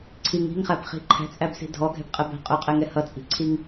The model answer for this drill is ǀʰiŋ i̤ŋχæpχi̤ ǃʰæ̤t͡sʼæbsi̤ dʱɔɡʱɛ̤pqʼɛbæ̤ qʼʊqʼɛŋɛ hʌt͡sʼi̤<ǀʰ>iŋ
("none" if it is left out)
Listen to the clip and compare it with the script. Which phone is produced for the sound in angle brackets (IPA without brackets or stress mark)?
ǀʰ